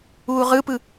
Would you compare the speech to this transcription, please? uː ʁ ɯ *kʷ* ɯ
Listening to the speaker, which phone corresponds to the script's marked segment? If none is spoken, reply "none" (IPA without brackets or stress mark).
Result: p